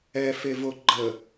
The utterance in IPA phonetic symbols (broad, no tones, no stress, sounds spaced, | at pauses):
ɛ f e v o ɡ͡ǃ ə